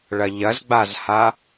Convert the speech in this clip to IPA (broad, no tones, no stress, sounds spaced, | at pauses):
ɭ ɐ ʎ ɐ z ɡ͡b a z h a